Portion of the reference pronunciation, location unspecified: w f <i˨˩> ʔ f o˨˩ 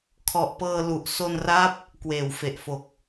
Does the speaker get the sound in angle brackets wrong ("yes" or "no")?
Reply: yes